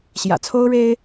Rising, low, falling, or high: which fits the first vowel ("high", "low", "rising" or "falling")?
low